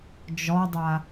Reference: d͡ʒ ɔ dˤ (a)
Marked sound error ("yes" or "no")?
no